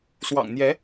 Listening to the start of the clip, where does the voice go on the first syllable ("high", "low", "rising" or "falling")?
low